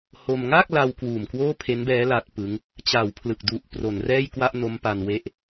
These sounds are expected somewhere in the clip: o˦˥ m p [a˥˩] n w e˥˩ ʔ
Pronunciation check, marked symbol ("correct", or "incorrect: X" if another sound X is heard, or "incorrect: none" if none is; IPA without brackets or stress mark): incorrect: a˧